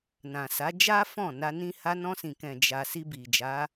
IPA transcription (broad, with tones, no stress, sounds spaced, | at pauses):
n ã˨ s a˨˦ d͡ʒ a˦ f ɔ̃˦˨ n a˧ n ĩ˦ h a˧ n ɔ̃˧ s ĩ˨ k ɛ̃˨ d͡ʒ a˧ s i˧ b i˨ d͡ʒ a˨˦